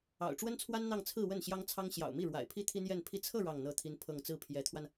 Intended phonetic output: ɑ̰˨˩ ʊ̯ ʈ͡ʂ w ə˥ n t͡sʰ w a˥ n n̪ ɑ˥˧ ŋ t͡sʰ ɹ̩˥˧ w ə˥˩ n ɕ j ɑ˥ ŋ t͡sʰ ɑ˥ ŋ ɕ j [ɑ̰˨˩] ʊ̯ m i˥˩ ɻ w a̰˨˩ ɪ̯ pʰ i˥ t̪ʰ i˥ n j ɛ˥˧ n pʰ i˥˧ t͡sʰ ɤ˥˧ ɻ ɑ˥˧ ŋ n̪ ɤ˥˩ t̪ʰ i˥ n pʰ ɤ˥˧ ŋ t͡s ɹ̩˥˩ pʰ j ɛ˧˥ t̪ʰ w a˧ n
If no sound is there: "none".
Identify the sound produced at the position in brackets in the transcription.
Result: ɑ̰˨˩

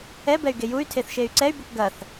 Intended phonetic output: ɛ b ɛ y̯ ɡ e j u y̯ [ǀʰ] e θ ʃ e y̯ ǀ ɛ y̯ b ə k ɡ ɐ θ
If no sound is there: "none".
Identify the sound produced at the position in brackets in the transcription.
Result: tʰ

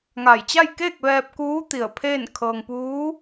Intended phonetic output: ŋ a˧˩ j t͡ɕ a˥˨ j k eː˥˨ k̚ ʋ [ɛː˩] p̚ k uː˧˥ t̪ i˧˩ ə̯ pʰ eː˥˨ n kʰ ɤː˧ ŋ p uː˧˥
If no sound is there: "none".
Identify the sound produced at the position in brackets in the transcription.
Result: ɛː˧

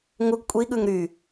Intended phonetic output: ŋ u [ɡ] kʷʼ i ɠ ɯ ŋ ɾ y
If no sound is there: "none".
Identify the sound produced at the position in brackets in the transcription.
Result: ɡ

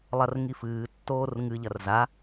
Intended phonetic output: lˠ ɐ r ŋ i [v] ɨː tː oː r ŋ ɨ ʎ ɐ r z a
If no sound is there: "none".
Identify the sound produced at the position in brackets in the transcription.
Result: f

